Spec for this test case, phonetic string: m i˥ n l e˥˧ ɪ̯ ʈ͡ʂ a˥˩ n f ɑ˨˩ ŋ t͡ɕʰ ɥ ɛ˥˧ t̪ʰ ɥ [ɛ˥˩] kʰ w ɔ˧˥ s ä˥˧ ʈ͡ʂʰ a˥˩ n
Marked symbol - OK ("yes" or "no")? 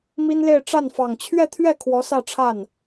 yes